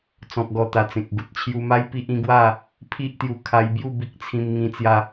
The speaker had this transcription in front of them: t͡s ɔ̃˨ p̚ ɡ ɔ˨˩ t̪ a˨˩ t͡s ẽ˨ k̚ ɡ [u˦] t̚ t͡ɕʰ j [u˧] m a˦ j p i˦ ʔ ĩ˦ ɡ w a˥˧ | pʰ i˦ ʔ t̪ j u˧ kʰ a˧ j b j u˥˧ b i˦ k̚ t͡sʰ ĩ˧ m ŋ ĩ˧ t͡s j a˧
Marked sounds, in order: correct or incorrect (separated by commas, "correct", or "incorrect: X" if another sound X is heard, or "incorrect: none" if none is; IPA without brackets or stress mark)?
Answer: incorrect: u˨, correct